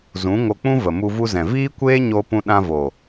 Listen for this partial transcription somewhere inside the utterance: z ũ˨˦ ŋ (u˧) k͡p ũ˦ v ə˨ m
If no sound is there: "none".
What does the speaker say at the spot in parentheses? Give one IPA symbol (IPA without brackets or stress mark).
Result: o˧